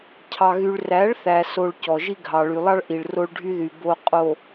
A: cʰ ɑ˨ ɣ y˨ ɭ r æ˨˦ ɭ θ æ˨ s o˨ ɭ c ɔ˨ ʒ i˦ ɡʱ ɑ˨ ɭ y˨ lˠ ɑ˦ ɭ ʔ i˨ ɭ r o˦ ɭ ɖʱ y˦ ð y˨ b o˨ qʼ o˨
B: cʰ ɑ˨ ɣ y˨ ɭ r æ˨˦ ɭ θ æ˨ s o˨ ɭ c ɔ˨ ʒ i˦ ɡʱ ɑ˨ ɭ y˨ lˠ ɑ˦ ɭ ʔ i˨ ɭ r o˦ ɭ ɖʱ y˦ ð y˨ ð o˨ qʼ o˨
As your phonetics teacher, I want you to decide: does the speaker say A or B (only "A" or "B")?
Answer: A